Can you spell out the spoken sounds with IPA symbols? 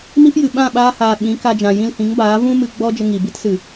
m i˦ p j ɨ˨ ɓ ã˦˨ ɓ aː˧ h aː˨ ɓ ĩ˨˦ k a˧ d͡ʒ ã˨ j ĩ˧ l h ĩ˨˦ ŋ b aː˨˦ v ũ˦ m ɨ˧ ɡ͡b ɔ˦ d͡ʒ ə˧ ŋ i˨ b i˦ t s ɨ˨

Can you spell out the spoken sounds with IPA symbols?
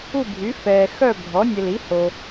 u˥˨ bʱ y˩˥ f ɛː˨ x œ˥˨ bʱ ɔ˩˥ nʲ ə˨ l i˩˥ h o˨

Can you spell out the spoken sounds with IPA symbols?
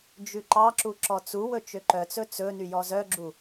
d͡ʒ ʉ ǃ ɑ ǁ u ǁ ɔ t͡s u w ɵ t͡ʃ ø ǃ œ t͡s ɵ t͡s ɵ n y j ɔ z œ ɡ͡ǁ u

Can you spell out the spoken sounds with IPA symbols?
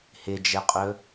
h ɪ d͡ʒ ɛ qʼ ɵ

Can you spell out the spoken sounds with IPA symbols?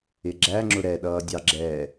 ɪ ɡ͡ǁ æ ŋ͡ǁ ʊ ɾ ɛ ɗ ʌː dʲ ɑ ɡ͡ǁ ɛ

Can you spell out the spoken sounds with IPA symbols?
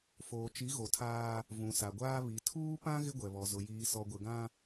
f oː˨ t͡ʃ i˨˦ ɣ o˨ tʰ aː˦ | v ũ˨ s a˨ ɡʷ aː˦ β i˨ tʰ uː˦ p ã˦ ɣ ɪ˦ ɡʷ ɛ˨ β ɔ˨ z ʊ˨ j iː˨ s ɔ˨ ɡʷ ɪ˨ ɡ ã˦

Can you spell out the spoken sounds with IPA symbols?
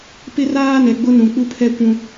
p ɪ˦ r aː˦ n ɛ˨ ɡ͡b ʊ˦ n ũ˨ k͡p u˦ pʰ ɛ˦ kʷ ũ˦

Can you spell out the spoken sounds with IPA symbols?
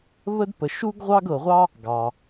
β ə˥ d p ə˧ ʃ u˥ ɡ ʁʷ ɑ˥ ɡ ɤ˧ ʁʷ ɑ˥ | ɡ ɑ˧

